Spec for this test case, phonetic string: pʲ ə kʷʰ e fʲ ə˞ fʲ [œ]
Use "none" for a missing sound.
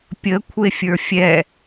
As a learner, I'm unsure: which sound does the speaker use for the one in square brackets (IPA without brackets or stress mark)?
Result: ɛ